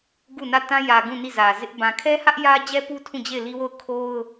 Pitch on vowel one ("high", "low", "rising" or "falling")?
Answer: falling